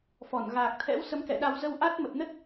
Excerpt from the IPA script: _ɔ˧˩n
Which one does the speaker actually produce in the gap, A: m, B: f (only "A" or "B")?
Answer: B